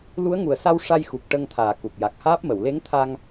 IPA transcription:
lu˧˥ə̯ŋu˨˩ə̯sa˧w ʂa˧jxu˨˩k̚ ʈə˧ŋt̪ʰaː˨˩ku˨˩k̚ ja˨˩k̚haː˦˥p̚ mə˨˩˨wle˧˥ŋt̪ʰa˧ŋ

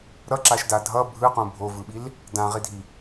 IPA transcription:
ɾʌǁaʃda dʱʌ bʱɯqũ bʱovɯɓil | dãʁidʱi

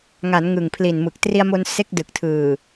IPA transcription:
ŋa˩˦n ŋɯ˨˩ŋpʰli˨˩nmɯ˨˩k̚ tri˧a̯mo˧n se˦˥k̚dɯ˨˩k̚tʰɯː˨˩

